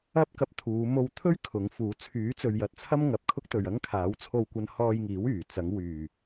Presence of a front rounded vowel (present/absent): present